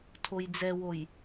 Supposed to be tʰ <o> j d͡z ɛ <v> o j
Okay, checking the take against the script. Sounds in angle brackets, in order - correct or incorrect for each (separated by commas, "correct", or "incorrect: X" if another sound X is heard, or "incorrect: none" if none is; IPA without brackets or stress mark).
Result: correct, incorrect: w